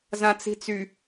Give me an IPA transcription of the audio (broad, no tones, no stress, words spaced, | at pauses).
zãt͡si̤t͡sy